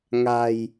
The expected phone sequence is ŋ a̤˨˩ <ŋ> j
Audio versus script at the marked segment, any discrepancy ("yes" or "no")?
yes